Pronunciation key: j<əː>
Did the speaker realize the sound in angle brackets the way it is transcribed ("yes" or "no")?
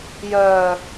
no